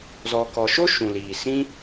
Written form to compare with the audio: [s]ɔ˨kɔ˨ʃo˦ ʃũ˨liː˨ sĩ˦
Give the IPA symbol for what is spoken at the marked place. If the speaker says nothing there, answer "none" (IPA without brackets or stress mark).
z